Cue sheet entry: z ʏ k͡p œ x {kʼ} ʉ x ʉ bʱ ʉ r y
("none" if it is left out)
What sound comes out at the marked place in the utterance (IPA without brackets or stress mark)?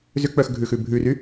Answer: ɡʱ